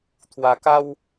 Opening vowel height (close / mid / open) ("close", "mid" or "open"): open